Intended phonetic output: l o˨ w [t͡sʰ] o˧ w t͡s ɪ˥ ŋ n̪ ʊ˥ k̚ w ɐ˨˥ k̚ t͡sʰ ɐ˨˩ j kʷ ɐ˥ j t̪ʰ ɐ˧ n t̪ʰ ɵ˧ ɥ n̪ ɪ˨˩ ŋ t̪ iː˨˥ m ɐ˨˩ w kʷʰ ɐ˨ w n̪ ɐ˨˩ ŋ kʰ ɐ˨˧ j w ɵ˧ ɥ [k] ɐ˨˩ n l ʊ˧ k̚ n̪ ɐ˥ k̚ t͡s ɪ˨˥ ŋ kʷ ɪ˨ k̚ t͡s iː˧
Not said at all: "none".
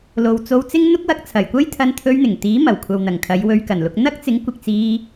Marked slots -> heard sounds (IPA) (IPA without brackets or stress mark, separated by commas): t͡s, k